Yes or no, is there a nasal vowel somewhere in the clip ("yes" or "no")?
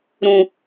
yes